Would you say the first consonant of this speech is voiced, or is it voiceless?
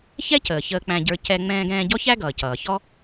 voiceless